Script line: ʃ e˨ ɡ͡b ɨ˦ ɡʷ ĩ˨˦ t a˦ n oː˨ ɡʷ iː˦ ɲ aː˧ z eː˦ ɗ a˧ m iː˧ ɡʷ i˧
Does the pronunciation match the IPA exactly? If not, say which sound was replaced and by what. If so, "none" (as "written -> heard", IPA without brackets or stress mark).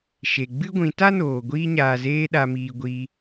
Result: none